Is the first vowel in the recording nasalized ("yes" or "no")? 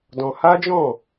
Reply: yes